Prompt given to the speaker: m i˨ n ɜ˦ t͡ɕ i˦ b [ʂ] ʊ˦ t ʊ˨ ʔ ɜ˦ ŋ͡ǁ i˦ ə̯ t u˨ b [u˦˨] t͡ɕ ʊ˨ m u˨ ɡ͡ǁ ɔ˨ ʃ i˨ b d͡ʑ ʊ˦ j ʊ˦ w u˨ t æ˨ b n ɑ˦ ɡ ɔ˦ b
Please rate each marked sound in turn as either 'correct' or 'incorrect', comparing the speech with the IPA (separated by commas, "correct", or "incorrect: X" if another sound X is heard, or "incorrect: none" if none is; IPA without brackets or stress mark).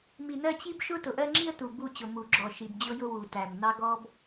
incorrect: ʃ, correct